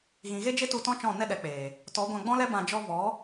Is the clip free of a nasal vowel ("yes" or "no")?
no